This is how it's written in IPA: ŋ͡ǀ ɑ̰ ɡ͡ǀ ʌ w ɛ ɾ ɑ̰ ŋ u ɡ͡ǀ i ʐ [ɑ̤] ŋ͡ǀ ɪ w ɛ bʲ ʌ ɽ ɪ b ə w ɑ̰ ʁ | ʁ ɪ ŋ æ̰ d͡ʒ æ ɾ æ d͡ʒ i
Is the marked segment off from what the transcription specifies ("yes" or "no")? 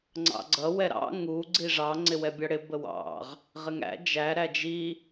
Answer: yes